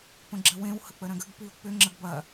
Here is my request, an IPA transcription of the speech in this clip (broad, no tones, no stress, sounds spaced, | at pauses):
p ə̃ ɡ͡ǁ ə w ẽ w h ə k͡p ə ɾ ɐ̃ ɡ ə ɡ p i o̯ k͡p ʏ ŋ͡ǁ ə ɡ b ɐ